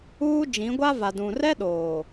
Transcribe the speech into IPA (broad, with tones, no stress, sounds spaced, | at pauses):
uː˦ d͡ʒ ĩ˨˦ ɡʷ a˦ v a˨ d ũ˨ r ɛ˦ ɗ oː˨